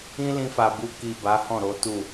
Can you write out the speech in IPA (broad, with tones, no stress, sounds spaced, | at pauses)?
ĩ˦ l ĩ˧ f a˨ b u˧ k i˨ b a˨˦ h ɔ̃˦˨ ɾ o˨˦ t u˦˨